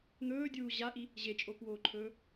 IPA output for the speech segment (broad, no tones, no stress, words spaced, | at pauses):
n̪ɵːdʲuː ʑaʔi | ʑet͡ʃʼokwoːǃʰɵː